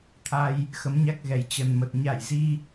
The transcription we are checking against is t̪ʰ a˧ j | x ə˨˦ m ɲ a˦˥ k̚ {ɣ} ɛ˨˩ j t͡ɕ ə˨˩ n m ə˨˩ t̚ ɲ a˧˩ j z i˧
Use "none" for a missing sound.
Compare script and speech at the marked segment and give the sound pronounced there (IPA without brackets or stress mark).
ɣ